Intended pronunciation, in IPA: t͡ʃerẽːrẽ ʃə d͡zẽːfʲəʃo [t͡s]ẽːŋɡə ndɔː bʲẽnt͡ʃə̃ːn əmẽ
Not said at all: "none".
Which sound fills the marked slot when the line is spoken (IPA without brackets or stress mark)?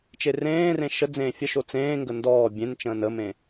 t͡s